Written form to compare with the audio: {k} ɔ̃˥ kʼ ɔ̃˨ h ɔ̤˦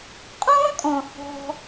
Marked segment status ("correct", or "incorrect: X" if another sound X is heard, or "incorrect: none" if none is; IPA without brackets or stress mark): incorrect: qʼ